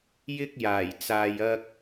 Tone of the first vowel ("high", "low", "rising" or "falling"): high